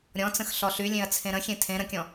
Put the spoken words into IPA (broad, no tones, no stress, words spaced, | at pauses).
ɾʲɔ̃t͡sə̃x ɬɔɬylʲẽɐ̯ t͡sʰẽɾə̃xʲẽ tʰẽ ɾə̃kʲɔ̃